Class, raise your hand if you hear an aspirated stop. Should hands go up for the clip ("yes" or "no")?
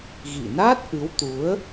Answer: no